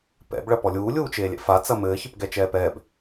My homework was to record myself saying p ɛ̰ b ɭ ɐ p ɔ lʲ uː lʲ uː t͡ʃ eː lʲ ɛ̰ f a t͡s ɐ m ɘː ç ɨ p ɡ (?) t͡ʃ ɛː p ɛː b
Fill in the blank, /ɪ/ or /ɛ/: ɛ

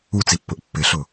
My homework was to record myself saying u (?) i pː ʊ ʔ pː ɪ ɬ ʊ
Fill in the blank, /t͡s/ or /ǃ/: t͡s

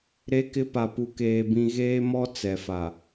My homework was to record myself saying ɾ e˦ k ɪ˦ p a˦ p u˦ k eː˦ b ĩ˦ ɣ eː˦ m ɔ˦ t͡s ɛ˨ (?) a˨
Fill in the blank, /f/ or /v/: f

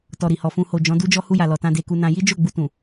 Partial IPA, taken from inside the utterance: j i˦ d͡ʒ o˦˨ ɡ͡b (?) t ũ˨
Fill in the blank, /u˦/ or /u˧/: u˧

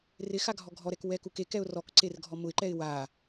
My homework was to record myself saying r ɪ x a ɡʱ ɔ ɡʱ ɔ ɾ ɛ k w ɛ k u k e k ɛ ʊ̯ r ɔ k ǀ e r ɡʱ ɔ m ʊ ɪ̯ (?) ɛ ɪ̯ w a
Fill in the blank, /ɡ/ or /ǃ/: ǃ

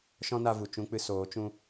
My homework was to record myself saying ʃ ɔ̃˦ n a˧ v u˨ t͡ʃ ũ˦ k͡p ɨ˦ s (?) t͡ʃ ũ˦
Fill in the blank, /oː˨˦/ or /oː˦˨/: oː˨˦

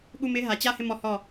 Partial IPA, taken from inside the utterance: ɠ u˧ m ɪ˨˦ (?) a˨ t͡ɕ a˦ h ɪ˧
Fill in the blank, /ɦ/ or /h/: ɦ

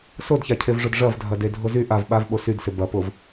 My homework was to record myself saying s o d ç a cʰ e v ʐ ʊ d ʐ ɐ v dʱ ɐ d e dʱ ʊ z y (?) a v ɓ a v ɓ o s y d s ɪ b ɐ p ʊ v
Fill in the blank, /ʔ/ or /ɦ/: ʔ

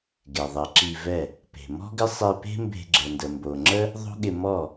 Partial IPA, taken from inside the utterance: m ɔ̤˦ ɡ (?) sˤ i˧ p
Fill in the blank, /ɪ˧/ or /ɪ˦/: ɪ˦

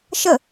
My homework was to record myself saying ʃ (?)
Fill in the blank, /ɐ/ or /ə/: ə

